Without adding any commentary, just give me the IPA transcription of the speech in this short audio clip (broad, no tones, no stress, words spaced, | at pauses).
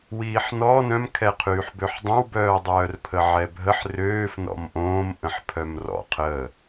wiːħnɔ nœ̃mkʰɛqʰyːħbøħ dˤœ̃wbœːdˤœːrpʰə ʕɛbʱəħ røːf nɔ̰mʔõːm ʔə̃ħpʰœmrɔ̰ qʰə